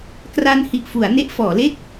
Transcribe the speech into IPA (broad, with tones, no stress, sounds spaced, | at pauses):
k r a˧ n h i˨˩ ʔ f u˩˦ a̯ n e˦˥ ʔ f ɔː˩˦ l e˥˩ k̚